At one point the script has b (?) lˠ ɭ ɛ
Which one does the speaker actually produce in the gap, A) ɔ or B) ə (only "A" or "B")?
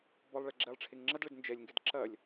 A